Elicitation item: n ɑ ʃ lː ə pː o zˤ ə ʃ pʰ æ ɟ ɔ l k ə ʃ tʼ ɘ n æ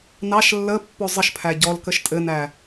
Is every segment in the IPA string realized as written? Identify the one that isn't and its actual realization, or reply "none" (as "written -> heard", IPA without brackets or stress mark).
none